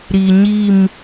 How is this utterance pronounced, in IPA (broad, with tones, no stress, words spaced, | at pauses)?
ɾi˨ɲi˦˨m